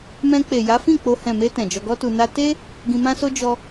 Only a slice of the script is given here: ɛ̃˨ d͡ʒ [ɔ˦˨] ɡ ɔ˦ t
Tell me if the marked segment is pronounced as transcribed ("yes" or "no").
no